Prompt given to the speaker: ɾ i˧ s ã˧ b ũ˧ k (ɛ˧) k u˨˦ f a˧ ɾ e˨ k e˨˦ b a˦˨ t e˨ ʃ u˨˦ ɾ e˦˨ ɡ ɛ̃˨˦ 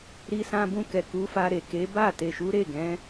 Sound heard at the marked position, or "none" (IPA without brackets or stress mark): ɛ˨